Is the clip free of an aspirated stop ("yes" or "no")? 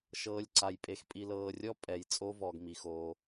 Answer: yes